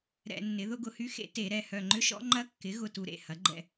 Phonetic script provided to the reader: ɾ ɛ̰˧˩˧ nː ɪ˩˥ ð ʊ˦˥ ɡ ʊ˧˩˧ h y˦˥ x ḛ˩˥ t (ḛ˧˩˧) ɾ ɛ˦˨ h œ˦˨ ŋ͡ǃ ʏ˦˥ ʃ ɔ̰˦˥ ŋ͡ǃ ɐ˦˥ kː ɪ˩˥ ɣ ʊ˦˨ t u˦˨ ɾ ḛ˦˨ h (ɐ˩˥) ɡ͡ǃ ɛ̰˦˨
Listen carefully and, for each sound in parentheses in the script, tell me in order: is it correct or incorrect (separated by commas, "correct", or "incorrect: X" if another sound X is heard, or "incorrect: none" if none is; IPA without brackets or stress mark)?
incorrect: e˧˩˧, correct